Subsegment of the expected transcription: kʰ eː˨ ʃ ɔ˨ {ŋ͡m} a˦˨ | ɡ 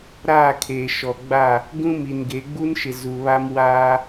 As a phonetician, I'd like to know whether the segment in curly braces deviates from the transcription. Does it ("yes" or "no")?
yes